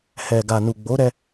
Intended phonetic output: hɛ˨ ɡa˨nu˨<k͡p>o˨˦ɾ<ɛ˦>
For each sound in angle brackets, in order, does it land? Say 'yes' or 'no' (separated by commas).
no, no